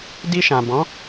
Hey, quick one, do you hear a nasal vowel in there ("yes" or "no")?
yes